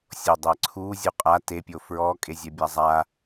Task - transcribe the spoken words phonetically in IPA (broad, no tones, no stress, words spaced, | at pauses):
sʲodˤɛǀʰu zʲuqʼa tepʲo fɹɔkʼe zʲɛbʲazˤa